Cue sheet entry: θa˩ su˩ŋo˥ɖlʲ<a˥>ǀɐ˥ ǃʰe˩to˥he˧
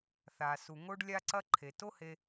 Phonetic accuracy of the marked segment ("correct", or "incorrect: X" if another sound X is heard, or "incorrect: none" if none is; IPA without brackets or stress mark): correct